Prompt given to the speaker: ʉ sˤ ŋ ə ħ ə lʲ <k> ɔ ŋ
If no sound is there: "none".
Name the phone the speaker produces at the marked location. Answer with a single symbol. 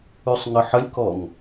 k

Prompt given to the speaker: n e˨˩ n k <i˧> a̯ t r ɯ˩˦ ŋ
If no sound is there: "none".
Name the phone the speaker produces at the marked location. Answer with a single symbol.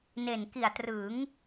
i˨˩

